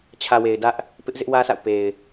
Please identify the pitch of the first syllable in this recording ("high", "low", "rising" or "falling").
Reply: low